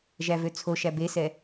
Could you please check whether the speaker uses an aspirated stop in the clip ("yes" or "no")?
yes